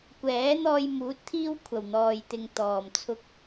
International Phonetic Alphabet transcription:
kʷɛː˨˥n̪ɔː˧j muː˨˥t̚t̪ʰiː˥w kʷʰɐ˨˩wn̪ɔː˨jt̪ɪ˨ŋ t̪ɔː˨˩mt͡sʰʊ˧k̚

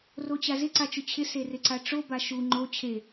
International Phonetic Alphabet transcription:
rot͡ɕazɪ ǀat͡ʃʊt͡ɕʰɪ serɪǀaʈ͡ʂo baʃu ŋ͡ǃo t͡ɕʰe

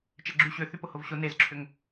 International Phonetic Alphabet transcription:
t͡ʃɛɡ͡ǁy ɕʏ θypʊhʊvɕʊ nezǁʰʏŋ

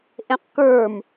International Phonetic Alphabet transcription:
ʔẽqkə˞m

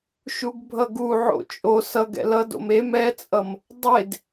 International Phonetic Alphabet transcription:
ʃuɡbʱʌɡu ʕo̰t͡ʃʼo sʌɡ ɛ̰lʌdo̰m em ɛt͡sʼʌm | dˤed

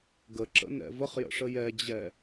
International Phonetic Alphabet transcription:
ɡəǁə̰nɛ̰ vəχjə̰ʂə jɛd͡ʑɛ

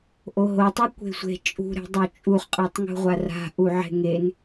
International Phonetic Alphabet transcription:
ʔoɦotˤɛ kʷe̤sʷe̤ t͡ʃʼṳɾe̤dˤo t͡ʃʼuχqʼatˤ ŋṳʁʷara̤ ʔuʕe̤ŋen

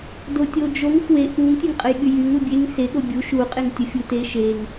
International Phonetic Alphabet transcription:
dotʲod͡ʒoŋ fwe ʔuŋ tʲeŋqʼəjɠyjyŋ ubʲeŋ se ɠobʲu ʃu qʼeŋtʲəfʲute ʃeŋ

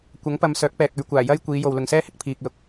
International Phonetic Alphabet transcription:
kʷɐ˨˥ŋpɐ˨˧m sœː˨˥k̚pɛː˨k̚ɵ˨˧ɥ kʷaː˨˩jɐ˥j kʷiː˨˧ jo˨wlʊ˨ŋsɛː˥hɪ˨k̚ pʰiː˨k̚lʊ˨k̚

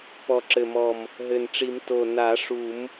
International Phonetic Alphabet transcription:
pɔ˨˩ǁɘ˨˩mɔ˨˩m | ɦɘ˨˩nʈ͡ʂi˨˩˦m to˨˩ na˨˩˦ ʂu˨˩˦m

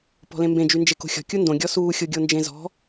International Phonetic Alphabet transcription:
pɔ̤lẽmbẽ d͡ʒynd͡ʒeko̤xʲɔ̤ kʲundõ ɡʲɔsuː xʲoɡʲond͡ʒẽzɔ̤

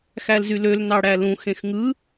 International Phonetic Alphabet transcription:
xælzyløl nɑɽælũ xẽxŋɯ

